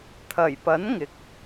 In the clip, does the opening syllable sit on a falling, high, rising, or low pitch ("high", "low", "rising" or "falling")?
low